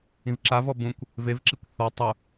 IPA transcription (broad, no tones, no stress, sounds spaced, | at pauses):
ĩ v ǁ a v ɔ b ũ kʷ | v e v ǁ i kʷ θ ɔ tˤ u